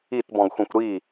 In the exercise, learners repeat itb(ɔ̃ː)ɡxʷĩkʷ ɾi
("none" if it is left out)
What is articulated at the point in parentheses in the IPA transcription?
ɔ̃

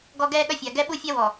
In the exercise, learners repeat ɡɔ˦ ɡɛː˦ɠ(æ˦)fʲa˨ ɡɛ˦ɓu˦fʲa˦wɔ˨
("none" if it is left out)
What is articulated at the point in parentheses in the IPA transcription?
ɐ˦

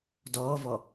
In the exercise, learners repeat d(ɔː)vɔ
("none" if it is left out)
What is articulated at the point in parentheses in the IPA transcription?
ɔː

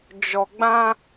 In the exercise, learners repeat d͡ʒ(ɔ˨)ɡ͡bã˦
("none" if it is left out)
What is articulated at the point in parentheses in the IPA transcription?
ɔ˨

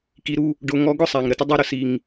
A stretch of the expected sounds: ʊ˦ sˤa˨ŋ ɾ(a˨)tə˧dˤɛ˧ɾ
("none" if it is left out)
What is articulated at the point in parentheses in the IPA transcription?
ə˨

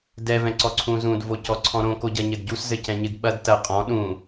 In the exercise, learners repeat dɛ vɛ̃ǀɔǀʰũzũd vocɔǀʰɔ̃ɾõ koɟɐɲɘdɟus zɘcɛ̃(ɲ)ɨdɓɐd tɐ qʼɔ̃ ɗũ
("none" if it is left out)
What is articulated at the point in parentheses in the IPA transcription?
ɲ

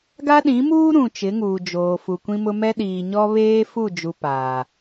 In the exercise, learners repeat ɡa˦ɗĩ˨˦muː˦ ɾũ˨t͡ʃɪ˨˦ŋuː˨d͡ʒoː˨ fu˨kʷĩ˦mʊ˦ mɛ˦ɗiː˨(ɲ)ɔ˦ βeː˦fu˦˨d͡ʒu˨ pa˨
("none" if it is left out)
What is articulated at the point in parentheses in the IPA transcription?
ɲ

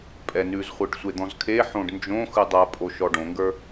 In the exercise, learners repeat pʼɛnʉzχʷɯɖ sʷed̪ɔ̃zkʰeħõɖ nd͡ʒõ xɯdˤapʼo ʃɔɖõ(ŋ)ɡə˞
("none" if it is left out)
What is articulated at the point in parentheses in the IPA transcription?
ŋ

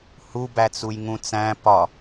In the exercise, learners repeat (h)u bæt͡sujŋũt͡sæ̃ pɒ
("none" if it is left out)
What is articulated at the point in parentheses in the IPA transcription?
h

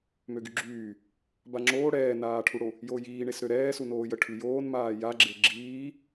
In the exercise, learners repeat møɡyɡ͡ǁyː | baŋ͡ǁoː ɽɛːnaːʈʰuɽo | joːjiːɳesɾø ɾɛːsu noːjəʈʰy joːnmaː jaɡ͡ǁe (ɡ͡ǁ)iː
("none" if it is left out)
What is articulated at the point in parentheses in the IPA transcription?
ɡ͡ǁ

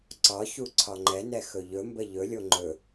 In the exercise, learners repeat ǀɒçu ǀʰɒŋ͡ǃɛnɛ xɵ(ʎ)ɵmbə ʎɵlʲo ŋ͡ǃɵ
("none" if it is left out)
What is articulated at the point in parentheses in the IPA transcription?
ʎ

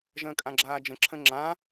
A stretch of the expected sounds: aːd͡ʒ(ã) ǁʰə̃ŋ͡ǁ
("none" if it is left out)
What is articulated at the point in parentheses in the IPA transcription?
ə̃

